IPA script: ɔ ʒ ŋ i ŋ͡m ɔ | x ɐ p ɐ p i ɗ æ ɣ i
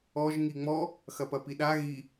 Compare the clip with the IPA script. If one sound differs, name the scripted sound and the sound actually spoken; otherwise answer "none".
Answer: æ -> a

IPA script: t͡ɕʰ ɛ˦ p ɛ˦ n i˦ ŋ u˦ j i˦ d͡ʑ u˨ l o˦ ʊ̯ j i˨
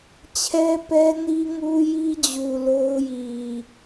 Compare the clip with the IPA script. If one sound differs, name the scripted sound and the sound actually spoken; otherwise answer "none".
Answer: none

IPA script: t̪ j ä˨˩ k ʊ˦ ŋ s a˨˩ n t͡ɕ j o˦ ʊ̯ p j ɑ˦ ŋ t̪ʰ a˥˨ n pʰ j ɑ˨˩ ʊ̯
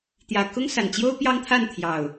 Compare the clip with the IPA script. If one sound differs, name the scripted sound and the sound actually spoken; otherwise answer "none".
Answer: pʰ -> t̪ʰ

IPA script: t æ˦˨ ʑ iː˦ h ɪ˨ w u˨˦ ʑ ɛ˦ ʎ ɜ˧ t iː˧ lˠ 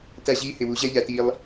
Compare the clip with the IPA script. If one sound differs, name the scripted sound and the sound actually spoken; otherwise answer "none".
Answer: ɜ˧ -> æ˧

